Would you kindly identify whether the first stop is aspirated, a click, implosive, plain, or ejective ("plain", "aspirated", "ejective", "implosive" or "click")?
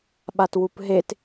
implosive